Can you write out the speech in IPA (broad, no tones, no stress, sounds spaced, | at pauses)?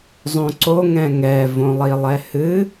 zˤ õ ǀ o ŋ ɛ̃ ŋ ɛ v õ lˠ i lˠ ɛ h ɨ